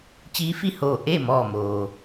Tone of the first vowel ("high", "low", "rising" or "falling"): rising